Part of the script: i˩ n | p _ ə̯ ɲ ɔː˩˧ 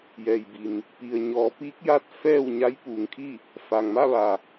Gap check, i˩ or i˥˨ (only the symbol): i˩